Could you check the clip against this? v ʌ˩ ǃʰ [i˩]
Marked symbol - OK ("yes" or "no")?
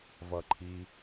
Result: yes